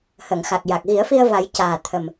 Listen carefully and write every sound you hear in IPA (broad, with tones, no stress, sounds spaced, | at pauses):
h ə˨˩˨ ŋ x a˨˩ k̚ j a˨˩ k̚ ɣ i˨˩˦ ə̯ f i˧ ə̯ v a˨˩˦ j c aː˨˩ t̪ʰ ə˨˩ m